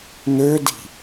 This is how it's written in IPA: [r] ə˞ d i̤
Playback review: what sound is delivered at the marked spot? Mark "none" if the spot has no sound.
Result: n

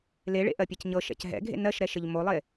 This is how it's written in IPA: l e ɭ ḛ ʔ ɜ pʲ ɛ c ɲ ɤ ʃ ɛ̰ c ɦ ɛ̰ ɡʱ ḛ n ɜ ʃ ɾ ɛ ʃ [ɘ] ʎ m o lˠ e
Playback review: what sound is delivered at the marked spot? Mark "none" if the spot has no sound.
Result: ɘ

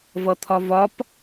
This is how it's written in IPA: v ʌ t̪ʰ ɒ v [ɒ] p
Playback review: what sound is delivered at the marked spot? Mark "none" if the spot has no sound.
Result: ɒ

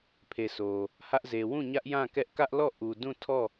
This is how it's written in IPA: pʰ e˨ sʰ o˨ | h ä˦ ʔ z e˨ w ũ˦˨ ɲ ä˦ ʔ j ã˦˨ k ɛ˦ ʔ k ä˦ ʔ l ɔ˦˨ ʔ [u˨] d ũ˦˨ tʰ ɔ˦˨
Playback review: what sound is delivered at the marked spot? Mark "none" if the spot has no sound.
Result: u˨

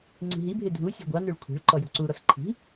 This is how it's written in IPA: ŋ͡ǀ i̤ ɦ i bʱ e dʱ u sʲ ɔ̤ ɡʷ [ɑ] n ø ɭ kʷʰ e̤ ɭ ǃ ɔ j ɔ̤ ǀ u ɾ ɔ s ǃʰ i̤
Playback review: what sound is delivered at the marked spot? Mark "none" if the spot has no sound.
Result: ɑ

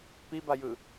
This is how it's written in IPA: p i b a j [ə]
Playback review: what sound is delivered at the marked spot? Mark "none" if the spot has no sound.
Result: ɯ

